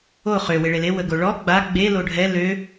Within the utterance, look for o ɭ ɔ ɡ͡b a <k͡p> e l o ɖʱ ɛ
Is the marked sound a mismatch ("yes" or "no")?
yes